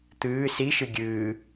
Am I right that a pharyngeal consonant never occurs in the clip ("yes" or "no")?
yes